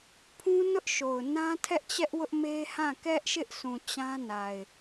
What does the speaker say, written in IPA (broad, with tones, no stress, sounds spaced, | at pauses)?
pʰ ũ˦ n ʊ˦ ʔ ʃ o˨ ʊ̯ n ã˦ tʰ ɛ˦ ʔ t͡ɕ ɛ˦ ʔ w ʊ˦ ʔ m e˦ h ã˦˨ k ɛ˦ ʔ ʃ ɪ˦ ʔ s ũ˨ t͡ɕ ã˦ n a˨ ɪ̯